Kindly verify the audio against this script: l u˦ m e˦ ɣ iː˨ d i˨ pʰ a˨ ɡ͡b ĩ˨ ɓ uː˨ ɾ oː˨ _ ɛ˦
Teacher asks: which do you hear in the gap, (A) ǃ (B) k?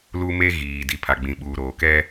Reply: B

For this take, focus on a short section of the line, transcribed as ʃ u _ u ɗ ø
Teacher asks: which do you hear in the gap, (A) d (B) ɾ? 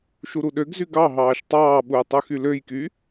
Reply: B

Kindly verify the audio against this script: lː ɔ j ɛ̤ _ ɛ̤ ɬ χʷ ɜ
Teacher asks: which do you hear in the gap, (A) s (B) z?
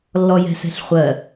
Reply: A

